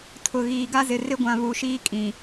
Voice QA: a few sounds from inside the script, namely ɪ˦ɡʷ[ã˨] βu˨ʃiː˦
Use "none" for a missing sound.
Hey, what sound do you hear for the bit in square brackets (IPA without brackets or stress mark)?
ã˨